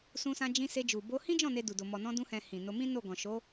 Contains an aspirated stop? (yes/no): no